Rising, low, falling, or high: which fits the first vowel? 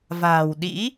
low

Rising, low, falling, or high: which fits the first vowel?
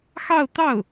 falling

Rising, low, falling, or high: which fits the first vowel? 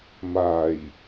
low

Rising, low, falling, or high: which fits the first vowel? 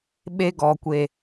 high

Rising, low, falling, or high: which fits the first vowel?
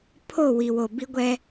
falling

